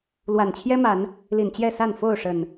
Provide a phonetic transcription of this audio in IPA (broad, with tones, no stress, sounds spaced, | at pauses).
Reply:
l w a˨˩ n t͡ɕʰ j ɛ˦ m a˨˦ n | l i˨˩ n t͡ɕ j ɛ˥˨ s a˥˨ n f o˥˨ ʊ̯ ʂ ə˨˩ n